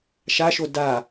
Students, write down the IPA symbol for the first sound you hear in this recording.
ʃ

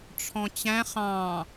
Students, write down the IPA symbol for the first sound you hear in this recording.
ʈ͡ʂʰ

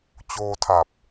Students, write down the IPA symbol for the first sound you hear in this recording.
t͡ɕ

